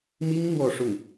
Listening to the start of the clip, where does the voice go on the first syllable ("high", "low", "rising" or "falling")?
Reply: high